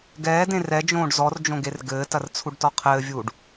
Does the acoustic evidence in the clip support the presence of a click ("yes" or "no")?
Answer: no